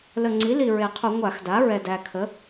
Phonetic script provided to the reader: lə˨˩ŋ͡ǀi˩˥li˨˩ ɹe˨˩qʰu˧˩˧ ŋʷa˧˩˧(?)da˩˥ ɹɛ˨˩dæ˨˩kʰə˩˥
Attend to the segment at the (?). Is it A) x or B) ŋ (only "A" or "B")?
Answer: A